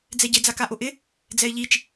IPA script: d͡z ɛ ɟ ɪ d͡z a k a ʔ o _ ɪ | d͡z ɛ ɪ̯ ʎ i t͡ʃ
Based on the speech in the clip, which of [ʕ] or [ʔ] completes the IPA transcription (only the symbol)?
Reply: ʔ